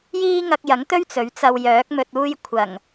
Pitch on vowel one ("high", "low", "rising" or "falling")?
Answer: high